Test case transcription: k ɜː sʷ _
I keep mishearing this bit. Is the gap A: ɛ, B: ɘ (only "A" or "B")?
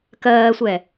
A